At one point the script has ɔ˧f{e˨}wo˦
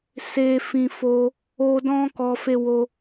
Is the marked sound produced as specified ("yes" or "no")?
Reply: no